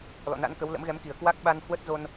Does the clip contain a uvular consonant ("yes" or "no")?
no